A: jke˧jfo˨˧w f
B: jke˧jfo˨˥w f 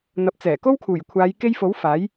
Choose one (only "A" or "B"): B